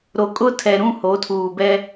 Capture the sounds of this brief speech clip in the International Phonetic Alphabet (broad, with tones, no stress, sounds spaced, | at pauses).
ɾ o˨ kʼ ʊ˦ tʰ ɛ˨ ɾ ũ˦˨ h o˨˦ tʰ uː˨ b ɛ˦